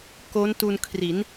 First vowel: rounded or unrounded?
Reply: rounded